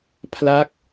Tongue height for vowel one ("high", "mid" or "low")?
low